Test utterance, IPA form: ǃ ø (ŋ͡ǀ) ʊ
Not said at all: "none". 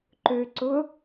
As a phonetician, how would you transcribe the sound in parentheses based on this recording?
ǀ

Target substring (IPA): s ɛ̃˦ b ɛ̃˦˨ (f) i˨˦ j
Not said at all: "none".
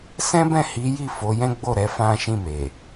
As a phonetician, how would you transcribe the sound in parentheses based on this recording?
h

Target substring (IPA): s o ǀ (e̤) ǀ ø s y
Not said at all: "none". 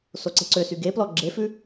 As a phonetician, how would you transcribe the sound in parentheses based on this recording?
e̤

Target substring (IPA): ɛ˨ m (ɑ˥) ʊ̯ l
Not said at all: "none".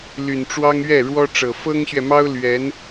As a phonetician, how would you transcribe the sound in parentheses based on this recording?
ɑ˥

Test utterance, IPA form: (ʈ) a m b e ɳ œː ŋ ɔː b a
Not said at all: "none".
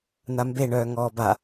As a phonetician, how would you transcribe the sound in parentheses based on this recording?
n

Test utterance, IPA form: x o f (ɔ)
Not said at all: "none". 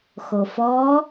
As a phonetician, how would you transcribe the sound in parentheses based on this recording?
ɔ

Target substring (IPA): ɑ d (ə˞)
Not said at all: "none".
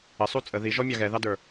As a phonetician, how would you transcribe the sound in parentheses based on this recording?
ə˞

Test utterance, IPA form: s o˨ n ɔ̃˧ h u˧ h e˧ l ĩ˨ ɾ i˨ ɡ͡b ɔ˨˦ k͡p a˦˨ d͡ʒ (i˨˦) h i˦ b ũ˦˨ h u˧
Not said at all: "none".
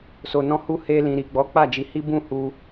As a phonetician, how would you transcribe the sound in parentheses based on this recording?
i˨˦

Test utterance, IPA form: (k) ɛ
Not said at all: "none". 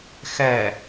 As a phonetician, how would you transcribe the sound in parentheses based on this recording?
x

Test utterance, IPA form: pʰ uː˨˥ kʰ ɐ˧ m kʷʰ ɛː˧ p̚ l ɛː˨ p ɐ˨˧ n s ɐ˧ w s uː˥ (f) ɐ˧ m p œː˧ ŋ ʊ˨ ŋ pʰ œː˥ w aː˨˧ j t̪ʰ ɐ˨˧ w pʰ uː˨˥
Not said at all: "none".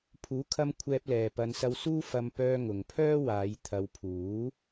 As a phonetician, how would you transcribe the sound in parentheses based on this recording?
f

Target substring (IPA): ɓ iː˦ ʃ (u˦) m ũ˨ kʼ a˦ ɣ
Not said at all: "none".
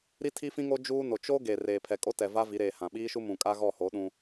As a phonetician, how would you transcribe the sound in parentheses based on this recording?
u˦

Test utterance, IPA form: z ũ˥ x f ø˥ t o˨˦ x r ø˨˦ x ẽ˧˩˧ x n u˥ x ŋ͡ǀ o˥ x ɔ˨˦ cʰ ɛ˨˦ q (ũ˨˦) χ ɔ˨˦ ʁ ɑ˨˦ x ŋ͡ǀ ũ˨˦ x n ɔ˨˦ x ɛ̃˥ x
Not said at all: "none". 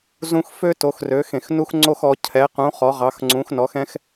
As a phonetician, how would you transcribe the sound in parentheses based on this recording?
ũ˨˦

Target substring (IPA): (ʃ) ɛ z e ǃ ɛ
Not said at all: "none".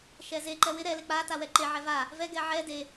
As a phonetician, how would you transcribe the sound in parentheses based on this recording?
ʃ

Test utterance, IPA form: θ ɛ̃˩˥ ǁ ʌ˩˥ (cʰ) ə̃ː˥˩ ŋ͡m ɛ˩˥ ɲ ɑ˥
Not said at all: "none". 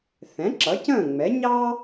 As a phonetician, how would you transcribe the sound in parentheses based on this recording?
c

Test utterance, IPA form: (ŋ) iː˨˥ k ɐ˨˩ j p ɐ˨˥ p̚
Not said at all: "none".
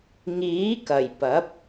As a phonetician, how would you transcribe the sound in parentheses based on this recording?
ŋ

